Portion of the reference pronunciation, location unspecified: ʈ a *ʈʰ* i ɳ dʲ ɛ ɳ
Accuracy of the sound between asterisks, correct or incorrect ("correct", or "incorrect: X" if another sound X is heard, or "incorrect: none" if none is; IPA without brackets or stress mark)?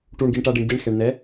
incorrect: ɖ